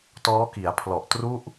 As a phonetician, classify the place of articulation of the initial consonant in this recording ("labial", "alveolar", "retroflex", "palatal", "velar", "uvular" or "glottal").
alveolar